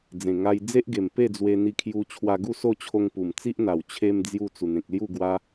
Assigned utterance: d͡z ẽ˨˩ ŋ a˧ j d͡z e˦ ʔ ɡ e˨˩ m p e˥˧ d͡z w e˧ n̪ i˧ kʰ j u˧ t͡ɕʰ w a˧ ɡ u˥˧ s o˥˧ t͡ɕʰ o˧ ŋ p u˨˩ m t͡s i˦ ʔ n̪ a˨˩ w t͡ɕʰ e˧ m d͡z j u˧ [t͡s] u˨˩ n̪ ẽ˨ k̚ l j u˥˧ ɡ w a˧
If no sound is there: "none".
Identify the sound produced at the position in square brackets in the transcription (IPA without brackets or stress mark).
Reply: t͡s